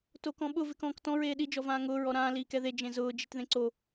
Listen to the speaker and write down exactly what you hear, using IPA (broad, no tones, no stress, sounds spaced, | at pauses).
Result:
t o k ɔ̃ ɓ ʊ v ɪ k ɔ̃ː k t ɔ̃ ɹ eː ɗ i d͡ʒ ɔ v ãː ŋ ʊː ɹ ɔ ɾ ãː l iː k ɛ ð e d͡ʒ ẽ z ʊː d͡ʒ i t ð ẽ ǀ o